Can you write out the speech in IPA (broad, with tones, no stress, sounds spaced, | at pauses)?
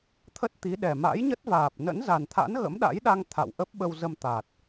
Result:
t̪ʰ ə˦˥ t̚ t̪ i˨˦ ɗ ɛ˨˩ m a̰˧˥ j ɲ ə˦˥ t̚ v aː˨˩ p̚ n ə̰˧˥ n z a˨˩ n t̪ʰ a̰˧˥ n ɣ ə̰˧˥ m ɗ a̰˧˥ j ɗ a˧ ŋ t̪ʰ a̰˧˨ w ʔ ə˦˥ p̚ ɓ ə˧ w z ə˧ m t̪ a˨˩ t̚